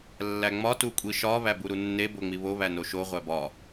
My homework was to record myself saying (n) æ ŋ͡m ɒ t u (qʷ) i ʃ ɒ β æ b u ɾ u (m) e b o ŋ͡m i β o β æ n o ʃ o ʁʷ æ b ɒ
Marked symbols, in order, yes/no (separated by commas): no, no, no